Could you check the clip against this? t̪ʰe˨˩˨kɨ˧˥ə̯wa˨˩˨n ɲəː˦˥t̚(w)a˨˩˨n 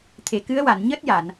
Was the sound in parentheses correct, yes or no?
no